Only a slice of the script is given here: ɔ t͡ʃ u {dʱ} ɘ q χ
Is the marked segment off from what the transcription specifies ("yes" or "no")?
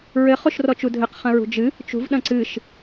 no